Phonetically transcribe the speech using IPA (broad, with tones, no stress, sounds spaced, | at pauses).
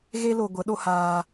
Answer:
ɣ e˦ l o˧ ɡʷ ə˨˦ ɗ o˧ h aː˧